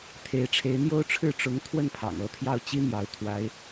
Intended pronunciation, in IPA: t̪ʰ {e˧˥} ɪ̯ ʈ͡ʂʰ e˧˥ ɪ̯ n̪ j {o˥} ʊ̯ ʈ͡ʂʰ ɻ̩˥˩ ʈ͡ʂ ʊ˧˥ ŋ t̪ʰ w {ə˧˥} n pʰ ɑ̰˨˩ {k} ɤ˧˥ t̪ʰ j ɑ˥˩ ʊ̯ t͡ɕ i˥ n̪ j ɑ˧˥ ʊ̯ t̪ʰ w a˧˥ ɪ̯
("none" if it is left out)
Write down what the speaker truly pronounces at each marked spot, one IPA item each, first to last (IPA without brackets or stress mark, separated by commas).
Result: e˧˥, o˥, ə˥˩, ŋ